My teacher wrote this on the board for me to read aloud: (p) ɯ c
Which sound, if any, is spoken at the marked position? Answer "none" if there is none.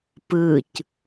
p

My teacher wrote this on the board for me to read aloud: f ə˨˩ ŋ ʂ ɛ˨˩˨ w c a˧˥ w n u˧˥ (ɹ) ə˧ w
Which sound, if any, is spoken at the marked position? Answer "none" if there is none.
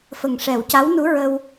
ɹ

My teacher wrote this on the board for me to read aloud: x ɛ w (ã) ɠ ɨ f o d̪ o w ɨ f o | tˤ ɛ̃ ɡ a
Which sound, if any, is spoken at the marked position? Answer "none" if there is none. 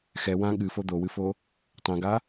ã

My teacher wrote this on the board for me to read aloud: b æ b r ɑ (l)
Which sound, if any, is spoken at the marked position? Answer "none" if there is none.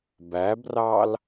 l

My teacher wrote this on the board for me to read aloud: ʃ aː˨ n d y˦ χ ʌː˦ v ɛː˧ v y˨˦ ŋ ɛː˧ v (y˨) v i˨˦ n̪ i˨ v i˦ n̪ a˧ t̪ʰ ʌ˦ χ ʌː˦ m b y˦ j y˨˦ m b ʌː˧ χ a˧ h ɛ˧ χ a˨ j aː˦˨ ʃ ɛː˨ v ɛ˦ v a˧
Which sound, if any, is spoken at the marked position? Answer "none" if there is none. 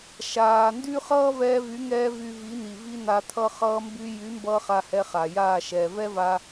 y˧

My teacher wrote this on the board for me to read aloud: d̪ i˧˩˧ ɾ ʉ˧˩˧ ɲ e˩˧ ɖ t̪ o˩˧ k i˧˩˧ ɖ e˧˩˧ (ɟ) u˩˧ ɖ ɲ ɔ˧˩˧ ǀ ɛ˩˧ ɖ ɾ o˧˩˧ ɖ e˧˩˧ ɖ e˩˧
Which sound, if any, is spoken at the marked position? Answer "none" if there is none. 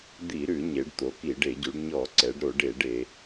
ɟ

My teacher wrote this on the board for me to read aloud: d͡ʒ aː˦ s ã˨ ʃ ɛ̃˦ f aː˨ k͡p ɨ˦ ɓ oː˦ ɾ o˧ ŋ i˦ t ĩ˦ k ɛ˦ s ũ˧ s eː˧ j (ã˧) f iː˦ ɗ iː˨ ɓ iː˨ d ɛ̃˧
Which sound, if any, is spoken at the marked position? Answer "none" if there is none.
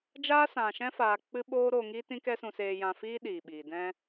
ã˧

